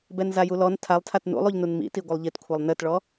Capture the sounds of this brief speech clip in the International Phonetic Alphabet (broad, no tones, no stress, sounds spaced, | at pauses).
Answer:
b ɛ n z a j u l ɔ n tʰ a lˠ tʰ a t n ṵ lˠ u ʎ n u n m ḭ t i ɡʷ ɨ lˠ ʎ i t kʷʰ a lˠ n ɘ t ɭ ɔ